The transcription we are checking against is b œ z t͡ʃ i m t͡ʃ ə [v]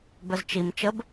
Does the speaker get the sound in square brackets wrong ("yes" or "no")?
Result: yes